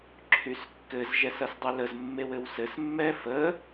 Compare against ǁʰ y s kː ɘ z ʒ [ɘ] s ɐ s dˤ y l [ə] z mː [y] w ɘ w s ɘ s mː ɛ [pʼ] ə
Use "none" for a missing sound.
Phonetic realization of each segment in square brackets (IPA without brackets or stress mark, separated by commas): ɛ, ə, e, f